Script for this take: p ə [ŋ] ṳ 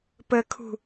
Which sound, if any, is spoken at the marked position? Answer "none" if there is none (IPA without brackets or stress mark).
kʰ